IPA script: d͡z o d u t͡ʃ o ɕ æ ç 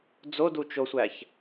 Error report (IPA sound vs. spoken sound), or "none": ɕ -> sʷ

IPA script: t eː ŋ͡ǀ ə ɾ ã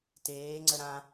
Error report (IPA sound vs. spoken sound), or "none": none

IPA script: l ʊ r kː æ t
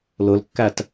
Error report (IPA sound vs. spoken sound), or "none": r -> l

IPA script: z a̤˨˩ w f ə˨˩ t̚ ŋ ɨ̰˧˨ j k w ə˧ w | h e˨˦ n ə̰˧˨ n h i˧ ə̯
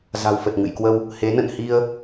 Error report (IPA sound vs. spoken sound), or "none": none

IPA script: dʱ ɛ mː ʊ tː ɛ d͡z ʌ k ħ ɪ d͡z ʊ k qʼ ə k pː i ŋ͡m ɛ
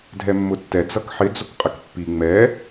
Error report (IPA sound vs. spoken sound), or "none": none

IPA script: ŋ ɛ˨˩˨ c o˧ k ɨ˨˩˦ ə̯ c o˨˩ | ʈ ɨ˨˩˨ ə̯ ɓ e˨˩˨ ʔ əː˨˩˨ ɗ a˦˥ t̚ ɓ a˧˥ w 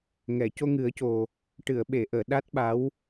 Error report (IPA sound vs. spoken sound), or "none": k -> ŋ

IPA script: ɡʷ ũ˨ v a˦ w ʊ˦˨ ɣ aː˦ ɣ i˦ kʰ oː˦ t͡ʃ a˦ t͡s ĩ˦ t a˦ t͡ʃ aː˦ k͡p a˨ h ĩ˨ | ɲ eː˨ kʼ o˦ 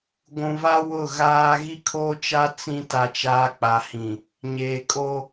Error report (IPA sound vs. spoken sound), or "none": none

